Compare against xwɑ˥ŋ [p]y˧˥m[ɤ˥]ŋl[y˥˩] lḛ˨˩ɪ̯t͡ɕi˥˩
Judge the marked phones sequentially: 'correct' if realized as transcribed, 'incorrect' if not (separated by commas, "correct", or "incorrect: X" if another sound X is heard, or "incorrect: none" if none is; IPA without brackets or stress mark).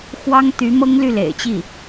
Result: incorrect: t̪, correct, correct